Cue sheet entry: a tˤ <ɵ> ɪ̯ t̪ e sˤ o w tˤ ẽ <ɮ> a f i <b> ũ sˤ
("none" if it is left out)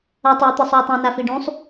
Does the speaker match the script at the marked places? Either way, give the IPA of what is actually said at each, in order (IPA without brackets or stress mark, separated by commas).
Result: ɵ, n, ɖ